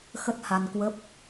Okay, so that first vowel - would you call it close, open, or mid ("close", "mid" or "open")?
mid